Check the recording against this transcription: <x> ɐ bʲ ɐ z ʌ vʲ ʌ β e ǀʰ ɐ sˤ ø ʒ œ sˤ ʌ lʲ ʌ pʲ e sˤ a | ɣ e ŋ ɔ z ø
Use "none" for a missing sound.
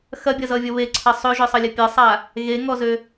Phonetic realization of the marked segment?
x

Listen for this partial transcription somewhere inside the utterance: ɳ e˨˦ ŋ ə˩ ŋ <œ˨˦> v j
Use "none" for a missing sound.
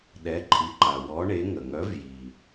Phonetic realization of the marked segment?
œ˨˦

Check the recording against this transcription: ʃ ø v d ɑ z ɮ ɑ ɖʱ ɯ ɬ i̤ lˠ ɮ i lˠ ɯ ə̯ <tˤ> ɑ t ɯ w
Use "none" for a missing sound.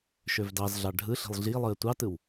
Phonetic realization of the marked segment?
tʷ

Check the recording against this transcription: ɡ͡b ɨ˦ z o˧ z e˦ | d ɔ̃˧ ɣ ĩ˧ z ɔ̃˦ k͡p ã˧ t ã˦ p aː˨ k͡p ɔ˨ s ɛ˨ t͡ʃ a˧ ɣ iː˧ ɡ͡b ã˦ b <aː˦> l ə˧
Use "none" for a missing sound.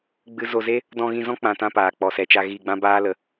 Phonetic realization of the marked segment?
aː˦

